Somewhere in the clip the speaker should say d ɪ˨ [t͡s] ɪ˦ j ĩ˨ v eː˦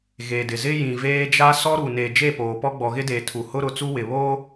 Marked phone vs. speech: incorrect: z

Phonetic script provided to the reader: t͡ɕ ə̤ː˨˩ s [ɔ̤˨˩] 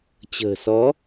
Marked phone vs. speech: incorrect: ɔ˨˦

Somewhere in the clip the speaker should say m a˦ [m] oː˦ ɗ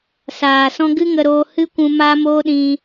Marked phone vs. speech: correct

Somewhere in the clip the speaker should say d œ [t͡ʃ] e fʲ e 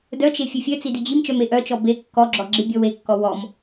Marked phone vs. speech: correct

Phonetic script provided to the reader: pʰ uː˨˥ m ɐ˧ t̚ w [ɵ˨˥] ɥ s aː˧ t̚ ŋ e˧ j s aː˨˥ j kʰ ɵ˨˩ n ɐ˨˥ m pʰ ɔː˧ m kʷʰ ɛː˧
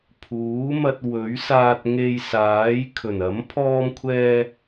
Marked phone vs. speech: correct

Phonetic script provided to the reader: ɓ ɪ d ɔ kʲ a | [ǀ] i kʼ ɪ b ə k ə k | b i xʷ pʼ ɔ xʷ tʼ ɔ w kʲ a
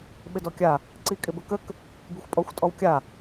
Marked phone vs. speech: correct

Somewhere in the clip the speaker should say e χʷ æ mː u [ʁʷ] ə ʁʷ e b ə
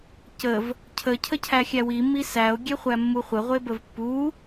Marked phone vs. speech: incorrect: χʷ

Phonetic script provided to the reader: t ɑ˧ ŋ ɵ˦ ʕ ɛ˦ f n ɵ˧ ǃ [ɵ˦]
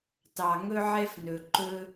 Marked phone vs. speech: correct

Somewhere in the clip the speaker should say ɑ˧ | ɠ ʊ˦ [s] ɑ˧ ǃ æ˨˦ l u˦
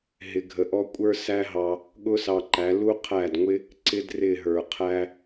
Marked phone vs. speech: correct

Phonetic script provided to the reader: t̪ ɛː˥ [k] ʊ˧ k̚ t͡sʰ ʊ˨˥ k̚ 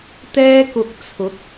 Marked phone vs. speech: correct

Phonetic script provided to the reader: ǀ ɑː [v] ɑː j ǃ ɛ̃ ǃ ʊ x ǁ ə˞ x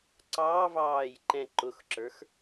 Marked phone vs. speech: correct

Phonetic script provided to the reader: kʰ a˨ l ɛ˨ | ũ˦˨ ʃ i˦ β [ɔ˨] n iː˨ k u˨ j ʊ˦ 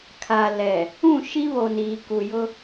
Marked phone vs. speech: incorrect: o˨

